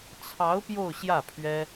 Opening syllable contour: rising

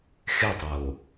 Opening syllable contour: falling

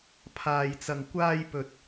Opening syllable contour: low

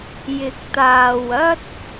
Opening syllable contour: rising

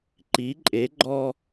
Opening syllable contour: rising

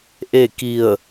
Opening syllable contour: falling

